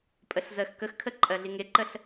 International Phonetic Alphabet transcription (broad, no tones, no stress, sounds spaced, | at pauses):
pʼ ə ɬ z ɜ x k ə x kʰ ə ǃʼ ɜ ɮ i ŋ e ǃ ə ɬ